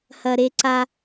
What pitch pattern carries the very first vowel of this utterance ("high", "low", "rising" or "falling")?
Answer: low